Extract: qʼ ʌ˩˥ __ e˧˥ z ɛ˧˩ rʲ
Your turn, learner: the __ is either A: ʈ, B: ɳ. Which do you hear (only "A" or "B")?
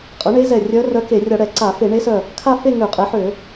B